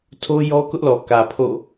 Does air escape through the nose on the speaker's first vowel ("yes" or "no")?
no